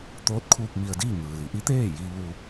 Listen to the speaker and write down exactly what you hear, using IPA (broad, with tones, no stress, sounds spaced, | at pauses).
t̪ oː˧˥ t̚ kʰ uː˧ k̚ m i˧ ə̯ d iː˥˨ ŋ ɯː˩ l i˩˧ ʔ i˧˥ t̪ eː˥˨ j iː˧ ʋ u˧